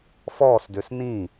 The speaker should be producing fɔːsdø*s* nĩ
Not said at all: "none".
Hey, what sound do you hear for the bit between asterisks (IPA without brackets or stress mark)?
s